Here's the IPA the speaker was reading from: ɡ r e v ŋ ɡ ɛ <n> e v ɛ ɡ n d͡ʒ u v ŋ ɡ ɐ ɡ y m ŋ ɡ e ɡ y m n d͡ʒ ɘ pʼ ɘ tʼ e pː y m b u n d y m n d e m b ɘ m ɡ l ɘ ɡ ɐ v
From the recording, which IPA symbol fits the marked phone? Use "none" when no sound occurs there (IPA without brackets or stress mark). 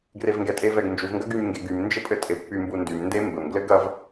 tʼ